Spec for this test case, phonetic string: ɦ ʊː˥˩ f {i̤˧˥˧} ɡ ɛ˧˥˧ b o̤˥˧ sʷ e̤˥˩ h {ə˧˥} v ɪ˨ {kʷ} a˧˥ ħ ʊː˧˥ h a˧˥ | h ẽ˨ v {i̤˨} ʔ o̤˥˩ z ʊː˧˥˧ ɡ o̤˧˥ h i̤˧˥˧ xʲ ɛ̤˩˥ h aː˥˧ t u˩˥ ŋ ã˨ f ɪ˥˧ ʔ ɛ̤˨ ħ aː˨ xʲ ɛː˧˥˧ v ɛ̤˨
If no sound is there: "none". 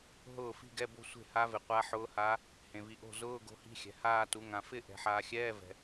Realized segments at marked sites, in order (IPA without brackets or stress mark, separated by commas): i̤˥˧, a˧˥, qʷ, i˨